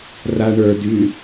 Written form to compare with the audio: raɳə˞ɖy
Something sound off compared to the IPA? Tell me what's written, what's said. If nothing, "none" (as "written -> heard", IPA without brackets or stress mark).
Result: ɖ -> d